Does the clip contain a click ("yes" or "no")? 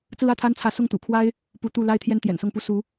no